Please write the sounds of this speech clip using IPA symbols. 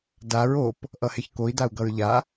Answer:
daɹ op | ʔʌheçkoi̯ dau̯ɡʌɹʎa

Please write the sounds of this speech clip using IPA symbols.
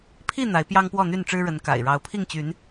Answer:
pʰi˥˨ n̪a˨˦ɪ̯ pjɑ˦ŋpwɔ˥˨n̪y˥˨n ʈ͡ʂɻ̩˦ɻə˨˦n ka̰˨˩ɪ̯ ɻɑ˨˦ʊ̯pʰi˥˨ŋt͡ɕy˨˦n

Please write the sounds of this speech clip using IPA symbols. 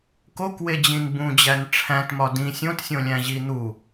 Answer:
kokwed͡ʑĩn bũd͡ʑæn ʈ͡ʂʰæ̃tmɒ dĩ sʲõtsʲõlʲæ̃ʑi n̪u

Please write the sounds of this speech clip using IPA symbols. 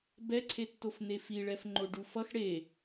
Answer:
bɛǀʰetːofne fiɭɛf ŋ͡ǃoɖufʌx ɽe

